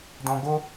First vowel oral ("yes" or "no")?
no